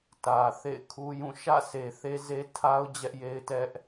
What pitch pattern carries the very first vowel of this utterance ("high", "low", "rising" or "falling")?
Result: low